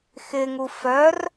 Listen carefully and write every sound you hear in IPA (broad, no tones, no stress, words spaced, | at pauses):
xɪŋu fœr